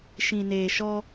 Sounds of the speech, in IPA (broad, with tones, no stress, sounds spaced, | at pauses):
ʃ ĩ˨ n eː˨ ʃ ɔ˧